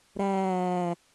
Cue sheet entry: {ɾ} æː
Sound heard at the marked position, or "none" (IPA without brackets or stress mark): ɾ